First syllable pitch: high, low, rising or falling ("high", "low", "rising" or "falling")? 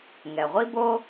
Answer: low